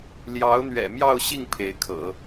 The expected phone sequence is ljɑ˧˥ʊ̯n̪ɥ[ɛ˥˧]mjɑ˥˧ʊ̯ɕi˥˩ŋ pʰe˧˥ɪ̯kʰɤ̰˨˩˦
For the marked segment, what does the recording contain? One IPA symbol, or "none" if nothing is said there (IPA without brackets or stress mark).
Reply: ɛ̰˨˩